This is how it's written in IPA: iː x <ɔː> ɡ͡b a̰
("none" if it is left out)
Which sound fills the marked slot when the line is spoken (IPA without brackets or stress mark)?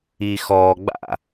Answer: ɔː